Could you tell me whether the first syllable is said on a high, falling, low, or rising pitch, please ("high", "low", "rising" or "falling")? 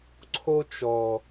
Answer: high